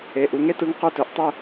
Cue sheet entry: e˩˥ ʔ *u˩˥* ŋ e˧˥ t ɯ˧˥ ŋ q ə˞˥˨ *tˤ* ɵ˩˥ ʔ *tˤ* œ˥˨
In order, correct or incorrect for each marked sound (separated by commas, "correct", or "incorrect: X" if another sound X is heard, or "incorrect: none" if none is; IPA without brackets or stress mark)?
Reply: correct, incorrect: t, correct